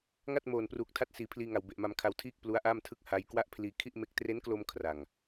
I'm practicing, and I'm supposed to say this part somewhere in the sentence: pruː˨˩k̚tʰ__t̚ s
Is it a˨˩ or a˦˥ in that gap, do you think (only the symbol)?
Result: a˦˥